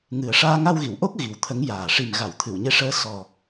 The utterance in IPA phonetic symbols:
ŋ ɨ˨˩ ə̯ ʂ aː˧ ŋ a˧ w ɣ i˨˩˨ w ʔ o˦˥ k̚ ɣ i˨˩ w t̪ʰ ə˧˥ ŋ j aː˨˩ ʂ i˨˩ m ɣ a˨˩˨ w t̪ʰ ɨ˨˩˨ w ɲ e˧ ʂ əː˧˥ s ɔ˨˩

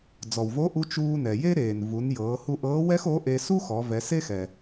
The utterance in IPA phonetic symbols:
d͡z ɔ˩ w v o˧˥ ʔ u˧ t͡ʃ uː˧ n ɛ˩ j e˥ ɾ eː˩ n v u˩˧ n j ɤː˩˧ h u˧ ʔ ɤː˧˥ w ɛ˥ x o˧˥ ʔ e˧ s u˥ x ɔ˩˧ v ɛ˩˧ s e˥ x ɛ˩

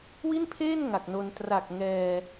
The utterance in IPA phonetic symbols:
w i˥˩ n pʰ eː˥˩ n ŋ a˨˩ k̚ n o˧ n t r a˨˩ k̚ ŋ ɛː˧

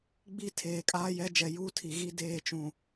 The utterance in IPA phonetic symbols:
ɡ͡b i˦ tʰ eː˨ kʼ aː˦ j ɛ˦ d͡ʒ ɛ˨ j uː˦ tʰ i˨ ɣ i˦ d eː˦˨ t͡ʃ ũ˨

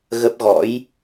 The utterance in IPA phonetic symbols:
ɣ ə˦˥ p̚ ɣ ɔ̰˧˥ j

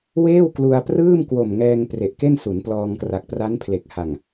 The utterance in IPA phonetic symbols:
w eː˥˩ w k l u˧ a̯ p r ɯː˥˩ m k w o˨˩ m ŋ ɛː˧ ŋ p r e˨˩ ʔ k e˥˩ n s u˩˦ n p l ɔː˧ ŋ k r a˨˩ k̚ p r a˦˥ n pʰ l e˨˩ k̚ h a˨˩ ŋ

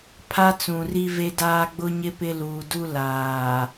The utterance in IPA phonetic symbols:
pʰ a˦ t͡s ũ˨ r i˦ v e˦ d aː˦ ɡ͡b ʊ˦ ɲ ɪ˦ p ɪ˦ l uː˨ d u˦ l aː˨

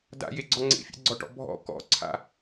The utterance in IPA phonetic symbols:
d a̰ j e ɡ͡ǀ ɔ ŋ͡ǀ ḛ fʲ ḛ ɡ͡ǀ ɔ ʈ ɔ̰ bʱ ɔ̰ k ɔ̰ ǀʰ a̰

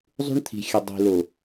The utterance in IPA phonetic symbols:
zˤ ṳ˦ ɳ t̪ʰ i̤˨ xʲ ə˨ dˤ ṳ˨ l o˨

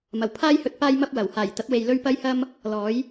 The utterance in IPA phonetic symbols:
m ɐ˨˩ w pʰ aː˥ j h ɵ˧ t̚ p aː˥ j m ɐ˥ p̚ w ɐ˨˩ w h aː˨˩ j t̪ ɐ˨˥ t̚ w e˨ j l ɵ˥ ɥ p ɐ˥ j h ɐ˥ m | l ɔː˨˥ j

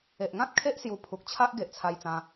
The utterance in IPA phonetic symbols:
e˨ ʔ ŋ ã˦ t̚ kʰ e˦ ʔ s j u˨˩ pʰ u˨ k̚ t͡ɕʰ a˦ ʔ ɡ e˨ ʔ t͡sʰ a˧ j t͡s ã˧

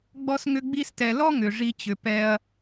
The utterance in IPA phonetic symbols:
ɡ͡b ɔ˦ s ŋ ʏ˦ ɡ͡b i˦ s t ɛ˨ l ɔ˥ ŋ ʏ˩ ʐ i˨ t͡ɕ ʏ˩ p ɛ˨ ɐ̯

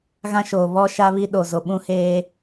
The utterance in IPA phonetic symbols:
ɣ ã˦ ʃ oː˨ β ɔ˦ ʃ a˦ β i˦ ɗ o˨ z o˨ ɓ ũ˦ h eː˦

